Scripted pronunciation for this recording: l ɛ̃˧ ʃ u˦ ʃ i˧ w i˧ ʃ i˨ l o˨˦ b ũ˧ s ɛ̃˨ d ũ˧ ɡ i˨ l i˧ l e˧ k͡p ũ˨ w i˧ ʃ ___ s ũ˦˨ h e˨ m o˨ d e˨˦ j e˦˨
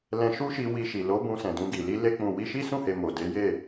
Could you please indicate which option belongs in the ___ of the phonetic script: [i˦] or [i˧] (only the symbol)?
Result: i˦